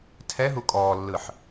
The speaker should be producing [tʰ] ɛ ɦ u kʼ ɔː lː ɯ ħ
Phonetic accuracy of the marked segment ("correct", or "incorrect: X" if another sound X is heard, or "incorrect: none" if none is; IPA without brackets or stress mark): correct